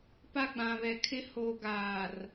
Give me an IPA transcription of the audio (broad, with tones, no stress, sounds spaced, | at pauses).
p a˦ ɡ͡b ã˨ β ɛ˨ kʰ ɪ˦ h o˨ ɡ aː˨ r